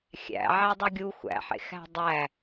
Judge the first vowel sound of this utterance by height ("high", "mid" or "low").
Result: low